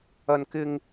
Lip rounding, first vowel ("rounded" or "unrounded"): unrounded